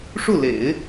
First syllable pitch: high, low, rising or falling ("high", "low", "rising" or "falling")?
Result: falling